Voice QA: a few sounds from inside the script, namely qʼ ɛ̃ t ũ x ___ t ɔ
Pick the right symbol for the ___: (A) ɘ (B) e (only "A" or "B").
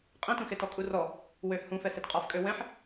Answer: B